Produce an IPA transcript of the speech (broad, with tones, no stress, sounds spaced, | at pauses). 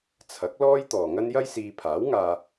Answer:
t͡sʰ ɐ˨˥ k̚ l ɔː˥ j t̪ ɔː˨ ŋ ɐ˥ n j ɐ˥ j s iː˧ pʰ aː˨˥ w ŋ aː˧